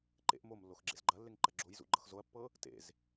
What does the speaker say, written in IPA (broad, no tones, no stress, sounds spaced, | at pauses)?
ǃ ḛ ʔ m o m lː o x ɡ͡ǁ ḛ z ɡ͡ǃ ɐ lː e ŋ ǃ ɐ ɡ͡ǁ o j z ṵ ɡ͡ǃ ɤ x z o ɐ̯ pː ɤ | t ḛ z